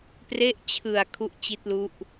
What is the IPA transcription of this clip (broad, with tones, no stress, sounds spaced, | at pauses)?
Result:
p r e˦˥ ʔ t͡ɕʰ ɯ˨˩ a̯ kʰ u˦˥ ʔ t͡ɕ i˦˥ t̚ l u˦˥ ʔ